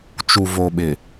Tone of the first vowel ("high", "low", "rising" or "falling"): low